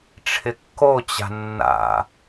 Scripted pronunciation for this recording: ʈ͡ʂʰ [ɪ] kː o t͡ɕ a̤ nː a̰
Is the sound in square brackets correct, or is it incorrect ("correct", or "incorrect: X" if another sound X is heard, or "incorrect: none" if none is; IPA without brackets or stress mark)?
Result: correct